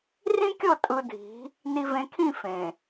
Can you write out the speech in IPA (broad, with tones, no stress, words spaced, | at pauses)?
rĩ˦kʲɤ˦˨ tʼɯ˨dʱi̤˨˦ | ni˨vẽ˨kʰĩ˦˨ fẽ˨